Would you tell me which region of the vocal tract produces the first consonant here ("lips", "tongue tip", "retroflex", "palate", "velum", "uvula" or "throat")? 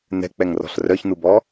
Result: tongue tip